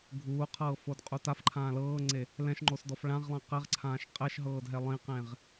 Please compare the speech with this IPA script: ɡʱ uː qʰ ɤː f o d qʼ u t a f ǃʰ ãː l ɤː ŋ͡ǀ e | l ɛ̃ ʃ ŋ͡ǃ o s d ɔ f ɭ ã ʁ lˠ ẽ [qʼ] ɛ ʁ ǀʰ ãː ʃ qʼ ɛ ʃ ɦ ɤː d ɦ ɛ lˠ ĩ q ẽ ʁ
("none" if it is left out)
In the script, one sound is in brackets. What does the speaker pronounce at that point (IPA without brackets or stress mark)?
q